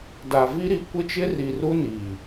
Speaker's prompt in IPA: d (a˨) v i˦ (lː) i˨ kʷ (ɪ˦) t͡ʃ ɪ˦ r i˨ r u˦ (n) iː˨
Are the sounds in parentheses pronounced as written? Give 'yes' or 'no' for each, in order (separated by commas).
yes, no, yes, yes